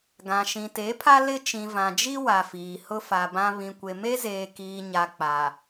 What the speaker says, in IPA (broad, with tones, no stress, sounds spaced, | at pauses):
ɡ ã˨ ʃ ĩ˨ t e˨˦ pʰ a˦ l ɪ˦ t͡ʃ ĩ˨ v ã˨ d͡ʒ i˦ w a˨ f iː˨ h ʊ˦ f a˨ b ã˦ β ĩ˨ kʷ e˨ m e˦ z eː˨ k iː˨ ɲ a˨ k͡p a˨